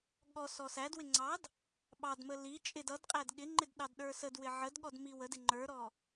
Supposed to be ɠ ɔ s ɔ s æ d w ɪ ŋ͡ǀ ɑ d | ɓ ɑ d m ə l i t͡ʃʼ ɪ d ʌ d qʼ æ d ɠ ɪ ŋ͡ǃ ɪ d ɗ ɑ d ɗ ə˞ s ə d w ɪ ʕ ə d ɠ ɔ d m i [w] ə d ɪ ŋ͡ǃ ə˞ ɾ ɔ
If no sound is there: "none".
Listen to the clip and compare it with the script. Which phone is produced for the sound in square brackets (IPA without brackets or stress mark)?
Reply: w